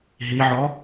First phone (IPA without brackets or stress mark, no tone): ɦ